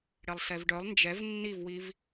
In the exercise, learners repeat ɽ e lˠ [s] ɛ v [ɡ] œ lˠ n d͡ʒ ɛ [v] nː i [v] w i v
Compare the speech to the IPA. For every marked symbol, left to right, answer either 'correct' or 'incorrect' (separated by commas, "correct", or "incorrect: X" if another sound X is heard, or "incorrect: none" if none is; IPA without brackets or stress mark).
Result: correct, incorrect: ɖ, correct, correct